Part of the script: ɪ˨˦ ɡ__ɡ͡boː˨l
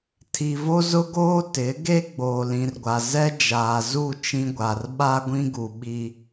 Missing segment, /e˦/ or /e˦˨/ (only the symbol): e˦